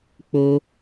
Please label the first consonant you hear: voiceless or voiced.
voiceless